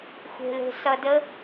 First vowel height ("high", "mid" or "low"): mid